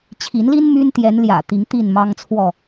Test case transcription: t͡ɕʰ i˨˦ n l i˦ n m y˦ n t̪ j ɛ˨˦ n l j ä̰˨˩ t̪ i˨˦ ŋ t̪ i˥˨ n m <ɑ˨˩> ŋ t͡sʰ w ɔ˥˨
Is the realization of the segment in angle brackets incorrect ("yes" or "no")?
yes